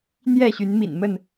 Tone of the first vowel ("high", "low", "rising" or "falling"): falling